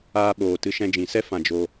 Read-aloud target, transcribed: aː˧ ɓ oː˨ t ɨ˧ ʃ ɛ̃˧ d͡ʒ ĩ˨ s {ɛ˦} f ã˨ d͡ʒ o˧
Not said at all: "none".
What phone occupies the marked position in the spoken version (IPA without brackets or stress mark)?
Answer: ɛ˦